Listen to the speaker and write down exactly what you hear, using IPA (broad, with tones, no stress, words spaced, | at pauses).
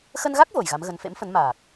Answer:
xə˧nɣa˦˥k̚ vo˨˩jɣa˨˦mɣə˨˦n fḛ˧˥mfə˨˦n maː˨˩k̚